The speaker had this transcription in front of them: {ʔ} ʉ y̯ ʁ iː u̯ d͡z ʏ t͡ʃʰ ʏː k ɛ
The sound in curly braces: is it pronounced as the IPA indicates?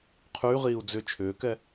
no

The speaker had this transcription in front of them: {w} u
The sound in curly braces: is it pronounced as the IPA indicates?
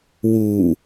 yes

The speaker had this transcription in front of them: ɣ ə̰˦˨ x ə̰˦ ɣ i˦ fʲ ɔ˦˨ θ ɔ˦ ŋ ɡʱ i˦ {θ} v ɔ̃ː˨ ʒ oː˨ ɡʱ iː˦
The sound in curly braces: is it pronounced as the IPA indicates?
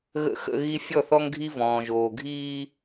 no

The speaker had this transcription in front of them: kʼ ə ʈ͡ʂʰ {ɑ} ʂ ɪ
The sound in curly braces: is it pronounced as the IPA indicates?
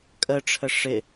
no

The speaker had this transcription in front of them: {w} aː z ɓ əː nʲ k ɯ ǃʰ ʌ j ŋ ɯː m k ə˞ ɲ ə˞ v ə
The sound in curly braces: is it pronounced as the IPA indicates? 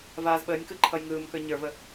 no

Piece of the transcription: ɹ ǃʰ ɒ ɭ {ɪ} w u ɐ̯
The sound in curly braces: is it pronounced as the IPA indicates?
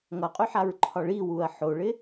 no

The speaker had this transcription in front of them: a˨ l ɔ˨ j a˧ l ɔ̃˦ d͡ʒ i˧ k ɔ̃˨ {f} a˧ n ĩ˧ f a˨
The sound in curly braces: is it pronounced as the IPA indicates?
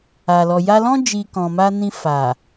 no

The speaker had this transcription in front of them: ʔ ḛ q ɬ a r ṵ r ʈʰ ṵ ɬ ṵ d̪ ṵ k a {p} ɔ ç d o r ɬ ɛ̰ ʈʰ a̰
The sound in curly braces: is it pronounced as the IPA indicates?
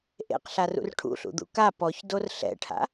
yes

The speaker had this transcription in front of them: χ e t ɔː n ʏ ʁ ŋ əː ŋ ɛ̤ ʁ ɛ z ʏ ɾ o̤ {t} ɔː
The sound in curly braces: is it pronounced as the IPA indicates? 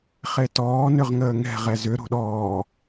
no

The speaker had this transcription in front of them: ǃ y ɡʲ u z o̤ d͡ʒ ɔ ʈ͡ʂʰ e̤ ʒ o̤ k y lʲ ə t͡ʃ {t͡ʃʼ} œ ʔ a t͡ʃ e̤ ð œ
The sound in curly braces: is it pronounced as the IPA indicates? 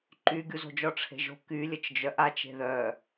no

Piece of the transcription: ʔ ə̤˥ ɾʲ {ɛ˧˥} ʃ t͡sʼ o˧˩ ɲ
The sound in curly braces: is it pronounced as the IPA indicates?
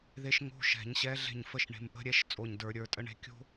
yes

